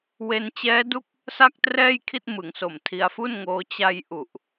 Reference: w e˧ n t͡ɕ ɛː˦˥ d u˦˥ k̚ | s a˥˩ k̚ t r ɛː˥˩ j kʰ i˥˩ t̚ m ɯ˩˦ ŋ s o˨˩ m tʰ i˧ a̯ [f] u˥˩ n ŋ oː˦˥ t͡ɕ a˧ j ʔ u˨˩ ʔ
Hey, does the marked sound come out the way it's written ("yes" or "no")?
yes